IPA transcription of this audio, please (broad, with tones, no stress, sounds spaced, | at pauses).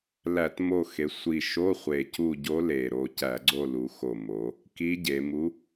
l æ˧˩˧ t m o˦˨ x e˩˧ sʷ i˨˩ ʃ o˧˥˧ χʷ e˨˩ c u˦˨ ɟ o˧˥ l e˨˩ ɾ o˦˨ c æ˧˩˧ ɡ͡ǀ o˦˨ l u˩˧ x o˨˩ m o˩˧ | k i˧˥ ɟ e˩˧ m u˧˥